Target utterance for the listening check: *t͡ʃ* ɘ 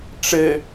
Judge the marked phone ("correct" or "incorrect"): incorrect